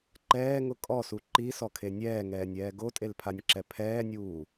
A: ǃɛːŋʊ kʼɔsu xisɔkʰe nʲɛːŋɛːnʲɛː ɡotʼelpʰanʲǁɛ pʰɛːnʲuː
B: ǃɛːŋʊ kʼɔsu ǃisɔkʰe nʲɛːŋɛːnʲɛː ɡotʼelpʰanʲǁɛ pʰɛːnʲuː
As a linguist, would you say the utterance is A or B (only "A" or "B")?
B